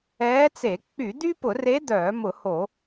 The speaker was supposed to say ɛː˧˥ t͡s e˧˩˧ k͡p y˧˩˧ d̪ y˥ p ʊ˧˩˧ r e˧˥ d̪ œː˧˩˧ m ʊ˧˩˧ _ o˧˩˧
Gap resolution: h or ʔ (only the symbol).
h